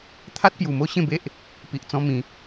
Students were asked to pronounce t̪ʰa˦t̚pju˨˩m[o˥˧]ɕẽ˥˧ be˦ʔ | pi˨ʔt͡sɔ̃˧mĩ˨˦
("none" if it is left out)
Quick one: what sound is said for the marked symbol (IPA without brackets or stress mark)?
o˥˧